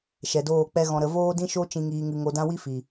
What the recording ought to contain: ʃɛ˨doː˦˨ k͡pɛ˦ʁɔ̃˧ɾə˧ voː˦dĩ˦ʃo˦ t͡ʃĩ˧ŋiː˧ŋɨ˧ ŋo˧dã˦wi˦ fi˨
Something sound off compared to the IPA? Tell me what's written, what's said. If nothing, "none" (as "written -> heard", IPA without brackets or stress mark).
ʁ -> ɣ